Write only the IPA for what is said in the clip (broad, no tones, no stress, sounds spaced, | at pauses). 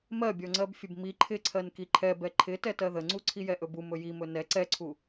m ɜ bʲ ɔ ŋ͡ǀ ɜ b fʲ ə b m i ǃʰ ɪ ǀʰ ɜ n k i ǃʰ ɛ b ɛ ǃʰ ɪ t ɛ t ɜ ð ə ŋ͡ǀ u ǀʰ i j ɛ ʔ ɵ b u m ɵ j i m ɵ n ɛ ǀ ɛ ǀʰ u